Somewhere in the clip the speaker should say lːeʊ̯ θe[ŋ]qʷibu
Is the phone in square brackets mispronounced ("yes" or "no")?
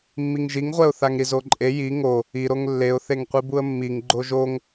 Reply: no